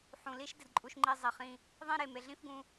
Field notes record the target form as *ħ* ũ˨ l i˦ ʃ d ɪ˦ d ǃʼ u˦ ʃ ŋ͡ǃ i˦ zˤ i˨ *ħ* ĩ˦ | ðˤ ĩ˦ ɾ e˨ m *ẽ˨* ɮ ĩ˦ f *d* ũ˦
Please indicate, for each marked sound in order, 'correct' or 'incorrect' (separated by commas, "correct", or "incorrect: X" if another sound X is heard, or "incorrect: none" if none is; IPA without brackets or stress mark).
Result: correct, incorrect: χ, incorrect: e˨, incorrect: ɡ